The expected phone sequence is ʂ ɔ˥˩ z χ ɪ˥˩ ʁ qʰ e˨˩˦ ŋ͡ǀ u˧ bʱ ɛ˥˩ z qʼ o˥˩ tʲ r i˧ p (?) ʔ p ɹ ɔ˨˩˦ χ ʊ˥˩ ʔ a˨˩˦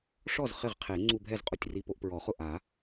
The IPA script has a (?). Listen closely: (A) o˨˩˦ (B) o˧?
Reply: B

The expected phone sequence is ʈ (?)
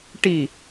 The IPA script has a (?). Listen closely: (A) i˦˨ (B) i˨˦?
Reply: A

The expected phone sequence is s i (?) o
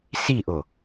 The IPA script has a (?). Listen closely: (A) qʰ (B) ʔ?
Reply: B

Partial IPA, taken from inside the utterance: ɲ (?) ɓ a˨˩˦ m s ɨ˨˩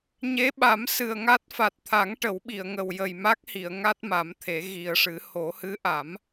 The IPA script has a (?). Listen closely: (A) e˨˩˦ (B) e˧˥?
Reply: B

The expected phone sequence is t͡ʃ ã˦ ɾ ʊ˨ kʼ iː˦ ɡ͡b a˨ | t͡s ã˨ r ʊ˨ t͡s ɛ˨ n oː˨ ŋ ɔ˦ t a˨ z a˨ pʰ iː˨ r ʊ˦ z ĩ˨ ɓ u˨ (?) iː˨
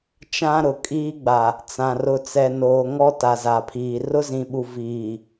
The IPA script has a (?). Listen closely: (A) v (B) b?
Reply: A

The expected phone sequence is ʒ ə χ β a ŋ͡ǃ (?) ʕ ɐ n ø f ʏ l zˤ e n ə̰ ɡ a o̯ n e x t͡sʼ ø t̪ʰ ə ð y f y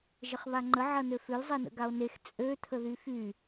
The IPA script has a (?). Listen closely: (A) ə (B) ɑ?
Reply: A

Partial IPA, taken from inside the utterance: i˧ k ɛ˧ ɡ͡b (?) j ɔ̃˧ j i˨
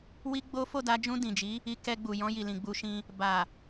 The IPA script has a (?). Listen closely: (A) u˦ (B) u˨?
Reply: B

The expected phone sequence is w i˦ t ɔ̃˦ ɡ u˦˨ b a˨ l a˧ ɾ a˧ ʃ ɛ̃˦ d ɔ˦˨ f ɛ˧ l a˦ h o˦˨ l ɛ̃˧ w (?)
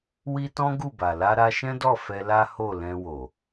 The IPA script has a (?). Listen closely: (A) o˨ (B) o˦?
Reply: A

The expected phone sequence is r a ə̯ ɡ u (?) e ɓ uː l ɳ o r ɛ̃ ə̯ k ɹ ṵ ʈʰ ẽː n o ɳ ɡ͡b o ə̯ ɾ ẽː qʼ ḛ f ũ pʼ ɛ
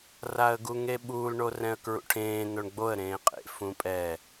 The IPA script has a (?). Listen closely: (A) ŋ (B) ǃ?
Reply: A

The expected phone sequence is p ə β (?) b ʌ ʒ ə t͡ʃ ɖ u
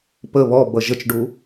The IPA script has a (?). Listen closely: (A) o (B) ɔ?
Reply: B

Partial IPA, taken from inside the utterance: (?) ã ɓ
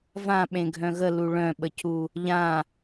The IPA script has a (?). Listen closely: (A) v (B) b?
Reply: A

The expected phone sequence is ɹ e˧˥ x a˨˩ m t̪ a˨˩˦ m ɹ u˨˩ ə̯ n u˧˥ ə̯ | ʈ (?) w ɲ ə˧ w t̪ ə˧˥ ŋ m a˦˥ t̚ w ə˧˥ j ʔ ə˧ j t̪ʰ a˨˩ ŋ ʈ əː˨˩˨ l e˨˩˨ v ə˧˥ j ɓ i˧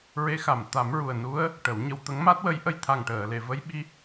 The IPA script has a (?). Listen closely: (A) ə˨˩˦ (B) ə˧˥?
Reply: A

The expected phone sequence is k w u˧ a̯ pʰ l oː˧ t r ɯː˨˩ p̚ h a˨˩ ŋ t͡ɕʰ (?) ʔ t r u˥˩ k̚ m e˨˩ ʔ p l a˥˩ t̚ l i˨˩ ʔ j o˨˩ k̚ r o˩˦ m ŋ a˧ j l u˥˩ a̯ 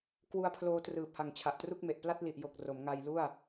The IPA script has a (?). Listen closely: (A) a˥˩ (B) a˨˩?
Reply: B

